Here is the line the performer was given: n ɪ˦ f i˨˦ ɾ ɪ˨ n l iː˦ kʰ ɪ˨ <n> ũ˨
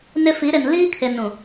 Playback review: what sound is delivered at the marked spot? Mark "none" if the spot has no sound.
n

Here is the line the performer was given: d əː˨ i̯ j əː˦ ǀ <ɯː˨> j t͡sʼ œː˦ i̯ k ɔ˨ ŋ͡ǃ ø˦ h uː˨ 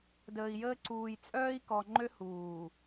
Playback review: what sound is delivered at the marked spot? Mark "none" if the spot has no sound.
uː˨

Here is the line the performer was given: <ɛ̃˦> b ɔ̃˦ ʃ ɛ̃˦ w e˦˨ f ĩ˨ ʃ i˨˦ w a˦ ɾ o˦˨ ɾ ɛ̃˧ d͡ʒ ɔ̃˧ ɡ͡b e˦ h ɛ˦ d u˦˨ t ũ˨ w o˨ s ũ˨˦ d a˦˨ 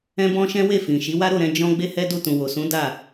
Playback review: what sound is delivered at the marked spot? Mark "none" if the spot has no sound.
ɛ̃˦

